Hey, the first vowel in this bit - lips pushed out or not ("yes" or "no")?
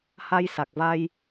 no